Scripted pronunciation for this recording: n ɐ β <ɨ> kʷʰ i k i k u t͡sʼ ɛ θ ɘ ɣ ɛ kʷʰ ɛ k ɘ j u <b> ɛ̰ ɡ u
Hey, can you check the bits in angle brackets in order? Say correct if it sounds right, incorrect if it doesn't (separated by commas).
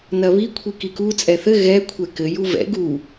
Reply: incorrect, incorrect